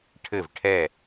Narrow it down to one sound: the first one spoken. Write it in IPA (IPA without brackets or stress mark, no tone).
ʈʰ